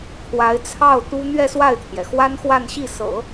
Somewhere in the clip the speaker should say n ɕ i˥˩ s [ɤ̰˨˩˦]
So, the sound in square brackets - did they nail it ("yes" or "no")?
yes